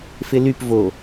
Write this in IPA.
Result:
f ɪ l y p v o

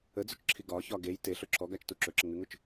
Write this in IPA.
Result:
ə d͡z ɵ t͡ʃ ǁʰ i ɡ ɒ ç ɒ ɡ e j t e ɬ ɵ ǁʰ ɔ ɡ a t͡ʃ t u ǁ ɵ ǁ ə ŋ ʉ ŋ ʊ t͡ʃ

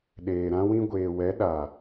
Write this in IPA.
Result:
ɗ eː˨ ɾ ã˧ w ĩ˧ ɡʷ eː˨ w ɛ˨˦ ɗ a˨

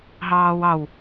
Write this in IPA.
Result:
ɦ ɑː w ɑ w

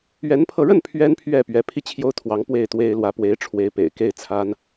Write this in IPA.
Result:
ɥ ɛ˧˥ n pʰ ɤ˧ ɻ ə˥˩ n pʰ ɥ ɛ˥ n pʰ ɥ ɛ˥˩ p ɥ ɛ˧˥ pʰ i˥˩ t͡ɕʰ j o˥ ʊ̯ t̪ʰ w ɑ˧˥ ŋ p w e˥˩ ɪ̯ t̪ w e˥ ɪ̯ l w ä˧˥ p w e˧˥ ɪ̯ ʈ͡ʂʰ w e˧˥ ɪ̯ p ḛ˨˩ ɪ̯ k e˥˩ ɪ̯ t͡sʰ a˥ n

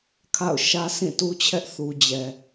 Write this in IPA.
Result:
kʰ a̰˦˨ ʊ̯ ʃ ä˦ s ĩ˦˨ t u˦ t͡ɕʰ ɛ˦ ʔ θ u˨ d͡ʑ ɛ˨

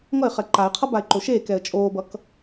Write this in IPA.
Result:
ŋ ʌ ɪ̯ χ ɛ ǃ a ɪ̯ qʰ ʌ b a ɪ̯ ǃ o ʃ eː k ɛ ə̯ t͡ʃʼ oː b ʌ k

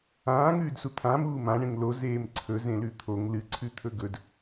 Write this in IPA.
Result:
ãː ŋ ʉː d s u t̪ʰ ã m uː m ã ɳ ẽ ŋ l o z eː m ǀʰ ɵ z ẽ l ʉ t̪ʰ o ŋ l ɨ ǀʰ ʉ t̪ʰ ɵ ɡ ɵ d

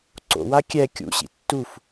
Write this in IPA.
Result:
ǀ o̰ w a kʲ ɛ kʲ ṵ ɕ ḭ tː u f

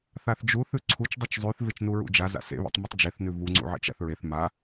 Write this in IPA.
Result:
θ a θ d͡ʒ u θ ʉ ǀʰ u t͡ʃ dˤ u t͡ʃ zˤ ʉ θ v e t͡ʃ n u ɹ ṵ d͡ʒ a z a̰ s ḛ β ḛ tˤ m u tˤ d͡ʒ e θ n ʉ v u ŋ͡ǀ ṵ ʕ ḛ t͡ʃ a̰ θ ɹ e θ m a

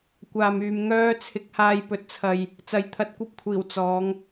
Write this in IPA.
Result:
kʷ aː˨ m yː˨ m ŋ œː˧ t͡sʰ ɪ˨˥ k̚ h aː˧ j p ɵ˨ t̚ t͡sʰ ɐ˨ j | t͡s ɐ˧ j t̪ʰ ɐ˧ t̚ kʷ ɐ˥ p̚ kʷʰ iː˨˩ w t͡s ɔː˨˧ ŋ

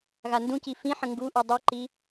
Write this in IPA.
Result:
ɣ a n d ũ c i f ĩ ħ ə̃ ŋ ɡ u ʔ ʉ dˤ i ǃ i

